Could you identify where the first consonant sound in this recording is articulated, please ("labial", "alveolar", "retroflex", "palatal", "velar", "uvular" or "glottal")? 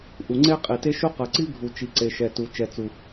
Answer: glottal